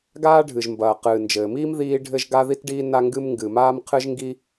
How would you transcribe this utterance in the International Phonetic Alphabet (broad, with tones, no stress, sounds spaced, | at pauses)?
ɡ aː˥ ɖʱ ɨ˩ ʒ m b ɐː˩ q ɨː˩ n d͡ʒ ɘː˩ m iː˥ m ð iː˥ ɖʱ ɘ˥ ʒ ɡ a˥ ð i˥ t ɖ iː˥ n a˥ ŋ ɡ ɨ˥ m ŋ ɡ ɨ˩ m aː˥ m qʰ ɨ˥ ʒ ŋ ɡ i˥